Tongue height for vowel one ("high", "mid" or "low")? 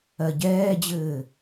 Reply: mid